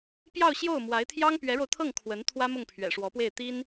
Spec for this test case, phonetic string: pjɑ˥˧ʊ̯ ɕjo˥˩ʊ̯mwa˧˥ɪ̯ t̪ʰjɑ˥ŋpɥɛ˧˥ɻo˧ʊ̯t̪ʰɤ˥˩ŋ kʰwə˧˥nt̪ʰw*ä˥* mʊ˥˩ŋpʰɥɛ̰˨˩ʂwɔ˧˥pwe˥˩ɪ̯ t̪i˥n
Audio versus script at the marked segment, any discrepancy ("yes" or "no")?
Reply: no